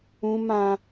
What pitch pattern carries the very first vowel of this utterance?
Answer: high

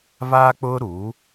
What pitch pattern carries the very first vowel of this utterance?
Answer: high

